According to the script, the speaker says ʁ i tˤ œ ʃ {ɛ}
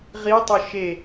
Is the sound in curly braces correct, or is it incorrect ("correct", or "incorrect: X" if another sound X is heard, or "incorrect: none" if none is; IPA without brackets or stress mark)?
incorrect: e